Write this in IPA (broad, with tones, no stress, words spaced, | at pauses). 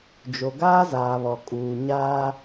d͡ʒo˨ɡaː˦zaː˨βɔ˨ kʼuː˨ ɲaː˦